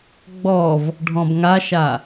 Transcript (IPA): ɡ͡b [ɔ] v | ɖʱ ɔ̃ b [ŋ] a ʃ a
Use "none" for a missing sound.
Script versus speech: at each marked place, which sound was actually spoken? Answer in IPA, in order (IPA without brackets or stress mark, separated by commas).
ɔ, ŋ